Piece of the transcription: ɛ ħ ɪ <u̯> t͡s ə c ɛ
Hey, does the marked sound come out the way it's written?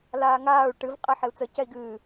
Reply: yes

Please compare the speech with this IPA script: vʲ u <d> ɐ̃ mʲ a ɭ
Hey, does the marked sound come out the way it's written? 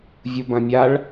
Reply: no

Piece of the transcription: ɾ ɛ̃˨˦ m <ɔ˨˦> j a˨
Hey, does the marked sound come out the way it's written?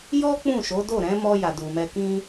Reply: no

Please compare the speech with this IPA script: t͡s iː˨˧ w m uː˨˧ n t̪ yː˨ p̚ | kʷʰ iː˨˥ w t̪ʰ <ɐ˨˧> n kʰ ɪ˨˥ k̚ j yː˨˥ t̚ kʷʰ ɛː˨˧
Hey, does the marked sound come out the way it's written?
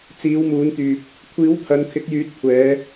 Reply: yes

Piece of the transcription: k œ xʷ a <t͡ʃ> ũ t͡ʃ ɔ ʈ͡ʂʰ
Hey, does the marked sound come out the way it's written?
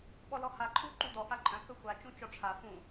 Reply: yes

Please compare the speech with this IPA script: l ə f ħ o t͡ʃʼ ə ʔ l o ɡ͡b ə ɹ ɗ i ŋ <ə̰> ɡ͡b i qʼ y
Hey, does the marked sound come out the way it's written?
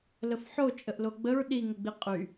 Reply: no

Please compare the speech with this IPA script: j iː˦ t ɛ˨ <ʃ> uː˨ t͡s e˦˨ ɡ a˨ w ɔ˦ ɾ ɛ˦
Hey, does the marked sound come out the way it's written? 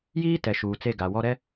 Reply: yes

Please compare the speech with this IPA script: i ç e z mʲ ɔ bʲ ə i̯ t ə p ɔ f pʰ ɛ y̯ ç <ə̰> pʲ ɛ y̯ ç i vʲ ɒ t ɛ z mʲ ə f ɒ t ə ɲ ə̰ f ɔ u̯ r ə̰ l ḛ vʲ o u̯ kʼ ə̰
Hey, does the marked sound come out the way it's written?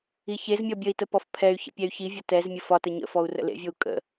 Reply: yes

